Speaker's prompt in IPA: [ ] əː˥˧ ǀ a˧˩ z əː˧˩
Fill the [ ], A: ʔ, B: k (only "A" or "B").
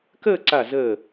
B